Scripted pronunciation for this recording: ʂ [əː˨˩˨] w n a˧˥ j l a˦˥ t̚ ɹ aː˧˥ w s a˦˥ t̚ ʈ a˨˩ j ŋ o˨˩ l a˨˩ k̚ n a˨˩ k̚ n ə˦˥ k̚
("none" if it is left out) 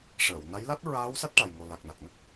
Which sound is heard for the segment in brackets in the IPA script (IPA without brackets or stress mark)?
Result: əː˨˩˨